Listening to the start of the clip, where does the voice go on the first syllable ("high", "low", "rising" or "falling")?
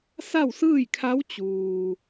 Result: falling